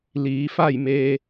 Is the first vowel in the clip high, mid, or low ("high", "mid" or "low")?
high